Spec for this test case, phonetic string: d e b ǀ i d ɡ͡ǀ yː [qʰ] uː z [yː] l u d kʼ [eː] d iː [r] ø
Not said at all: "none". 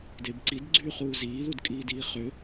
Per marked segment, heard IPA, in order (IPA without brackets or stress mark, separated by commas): χ, iː, iː, χ